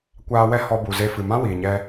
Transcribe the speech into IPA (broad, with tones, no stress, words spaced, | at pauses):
kʷaː˧wɛ˦ hɔ˧bu˨ze˧ fɨ˨mã˦wiː˨ɲɛ˧